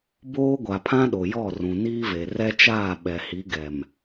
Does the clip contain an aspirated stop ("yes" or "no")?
yes